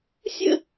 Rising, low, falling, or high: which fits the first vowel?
falling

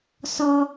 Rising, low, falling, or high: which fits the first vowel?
high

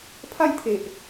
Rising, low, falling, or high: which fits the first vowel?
falling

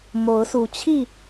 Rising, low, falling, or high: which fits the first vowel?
rising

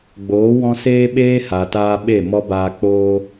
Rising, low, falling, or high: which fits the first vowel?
rising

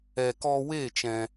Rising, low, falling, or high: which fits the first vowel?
low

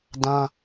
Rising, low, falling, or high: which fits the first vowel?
high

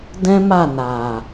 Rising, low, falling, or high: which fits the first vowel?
high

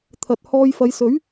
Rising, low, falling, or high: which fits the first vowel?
low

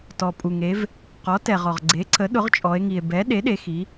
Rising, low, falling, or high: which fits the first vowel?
low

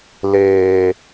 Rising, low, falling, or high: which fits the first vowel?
low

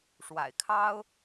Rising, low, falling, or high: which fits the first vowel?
low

